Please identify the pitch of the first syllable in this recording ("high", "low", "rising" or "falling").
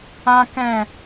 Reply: high